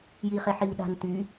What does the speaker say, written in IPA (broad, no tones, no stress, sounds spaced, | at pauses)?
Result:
j iː χ e ħ iː ɗ a̤ n t̪ yː